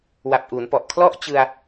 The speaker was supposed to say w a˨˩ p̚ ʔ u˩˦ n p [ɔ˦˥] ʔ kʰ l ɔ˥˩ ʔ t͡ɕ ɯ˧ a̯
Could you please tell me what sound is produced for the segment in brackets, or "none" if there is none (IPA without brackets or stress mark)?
ɔ˨˩